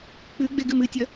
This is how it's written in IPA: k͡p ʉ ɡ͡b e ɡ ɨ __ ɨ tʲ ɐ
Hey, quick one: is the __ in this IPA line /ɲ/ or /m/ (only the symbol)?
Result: m